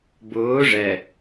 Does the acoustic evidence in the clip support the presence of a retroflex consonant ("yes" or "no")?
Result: yes